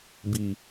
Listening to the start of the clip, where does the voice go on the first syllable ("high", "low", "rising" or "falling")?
low